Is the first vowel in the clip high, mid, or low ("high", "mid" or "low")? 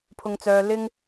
high